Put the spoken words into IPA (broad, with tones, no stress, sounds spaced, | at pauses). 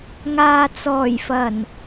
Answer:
ŋ aː˨ t͡s ɔː˨˩ j f ɐ˨˩ n